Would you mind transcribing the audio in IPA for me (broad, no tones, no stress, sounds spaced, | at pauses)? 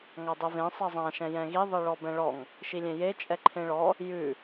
ŋ a dˤ e v ẽ sˤ ɛ zˤ ã ʃ ɛ̃ j ɛ̃ ɣ i ðˤ i ɭ ɔ b ɛ̃ ɭ ɔ ŋ | ʃ i lʲ ẽ j e t͡ʃʼ ɛ ǃʰ ẽ ɭ ɔ | j ʉ